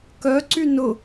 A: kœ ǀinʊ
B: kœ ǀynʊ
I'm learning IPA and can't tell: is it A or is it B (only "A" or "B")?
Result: B